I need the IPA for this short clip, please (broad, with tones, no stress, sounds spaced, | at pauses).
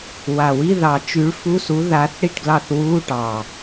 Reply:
w a˨˩ w i˧˥˧ ð ɑ˨˩˦ t͡ʃ y˨˥ ɭ f u˧˥˧ s u˨˥ ð a˨˥ θ ɽ i˥˩ ʈ ɡ l ɑ˥˩ θ w uː˧˥˧ ʈ ɑ˨˩